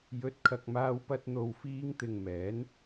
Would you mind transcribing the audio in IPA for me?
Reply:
j ɵ˨˥ t̚ kʰ ɐ˨ k̚ m aː˧ w p ɐ˧ t̚ n̪ o˨ w f iː˧ ŋ t̪ ɪ˨ ŋ m ɛː˨˥ n

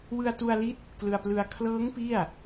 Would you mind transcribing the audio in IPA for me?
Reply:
w ɯ˧ a̯ t u˧ a̯ l i˦˥ t̚ | k l ɯ˧ a̯ p l ɯ˧ a̯ kʰ l ɤː˦˥ ŋ p i˥˩ a̯

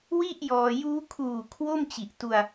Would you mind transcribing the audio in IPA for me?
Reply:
w i˥˩ ʔ j ɔː˧ j uː˦˥ kʰ uː˨˩ kʰ w o˥˩ m t͡ɕ i˨˩ ʔ t u˧ a̯

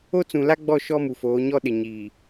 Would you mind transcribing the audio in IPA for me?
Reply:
o˦ t͡s ũ˨ l a˦ ɡ͡b ɔ˦˨ ʃ ɔ˦ m u˨ f oː˨˦ ɲ ɔ˦ ɗ ɪ˨ ɲ iː˨

